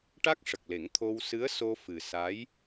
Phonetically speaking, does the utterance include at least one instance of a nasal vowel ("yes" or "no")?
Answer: no